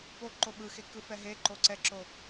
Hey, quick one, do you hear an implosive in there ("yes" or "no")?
yes